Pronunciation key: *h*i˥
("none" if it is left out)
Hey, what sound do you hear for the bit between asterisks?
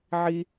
ʕ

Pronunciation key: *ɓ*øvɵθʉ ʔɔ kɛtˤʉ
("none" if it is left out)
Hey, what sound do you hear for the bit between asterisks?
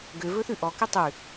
ɡ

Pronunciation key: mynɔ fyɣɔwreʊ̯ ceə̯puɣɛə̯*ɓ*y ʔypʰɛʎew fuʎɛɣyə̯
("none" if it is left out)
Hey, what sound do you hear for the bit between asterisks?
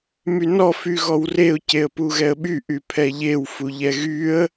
ɓ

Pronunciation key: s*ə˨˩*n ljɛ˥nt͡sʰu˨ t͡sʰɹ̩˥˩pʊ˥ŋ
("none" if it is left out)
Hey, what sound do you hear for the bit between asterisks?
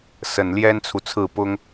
ə˨˩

